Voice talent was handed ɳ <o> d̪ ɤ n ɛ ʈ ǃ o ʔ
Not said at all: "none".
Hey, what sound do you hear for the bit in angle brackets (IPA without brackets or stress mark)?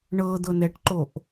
ɤ